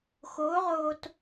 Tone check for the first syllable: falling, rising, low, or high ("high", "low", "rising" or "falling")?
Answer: rising